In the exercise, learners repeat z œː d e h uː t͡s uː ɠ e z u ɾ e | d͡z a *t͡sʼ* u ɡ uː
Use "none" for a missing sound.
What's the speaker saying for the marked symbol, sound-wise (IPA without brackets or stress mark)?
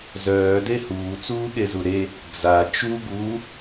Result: t͡ʃ